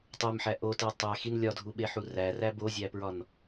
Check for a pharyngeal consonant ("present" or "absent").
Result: present